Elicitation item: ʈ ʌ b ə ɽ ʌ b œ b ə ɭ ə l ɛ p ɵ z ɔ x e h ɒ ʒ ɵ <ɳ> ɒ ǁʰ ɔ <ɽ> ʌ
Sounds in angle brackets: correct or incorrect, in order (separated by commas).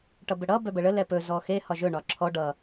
correct, incorrect